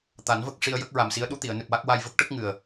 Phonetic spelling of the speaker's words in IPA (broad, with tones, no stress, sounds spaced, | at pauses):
t̪ a˨˩˦ n v ə˦˥ k̚ ʂ i˧ ə̯ j ə˦˥ k̚ ɹ a˨˩ m s i˧˥ ə̯ ɗ u˧˥ t̪ i˨˩˨ ə̯ n ɨ˨˩ p̚ w a˦˥ k̚ w a˧ j v ə˦˥ k̚ ʈ ə˦˥ k̚ ŋ ɨ˨˩ ə̯